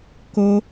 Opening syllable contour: high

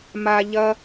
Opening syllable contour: low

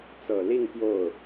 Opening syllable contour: low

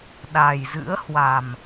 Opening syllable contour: low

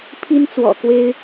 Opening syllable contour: high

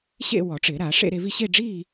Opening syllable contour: falling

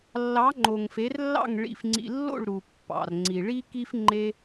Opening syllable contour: rising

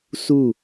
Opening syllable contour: falling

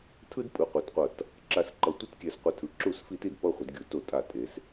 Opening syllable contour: high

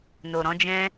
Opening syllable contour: low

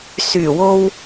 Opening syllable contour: low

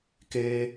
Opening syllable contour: high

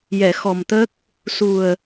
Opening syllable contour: low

